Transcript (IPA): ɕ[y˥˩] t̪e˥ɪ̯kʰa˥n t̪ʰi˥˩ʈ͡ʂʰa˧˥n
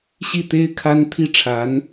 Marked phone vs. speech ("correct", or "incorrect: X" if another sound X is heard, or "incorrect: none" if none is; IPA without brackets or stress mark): incorrect: i˥˩